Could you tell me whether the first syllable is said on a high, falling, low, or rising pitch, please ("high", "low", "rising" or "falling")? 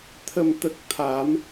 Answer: low